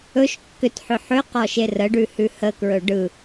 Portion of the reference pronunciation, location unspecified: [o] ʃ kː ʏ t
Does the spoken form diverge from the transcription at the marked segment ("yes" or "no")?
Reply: yes